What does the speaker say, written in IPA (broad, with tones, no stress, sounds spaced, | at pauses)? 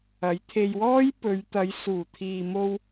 ɐ˨˥ j t̪ʰ e˧ j w ɔː˥ j p ɵ˨˧ ɥ t̪ ɐ˨˧ j s uː˨˩ t̪ʰ iː˨ m o˧ w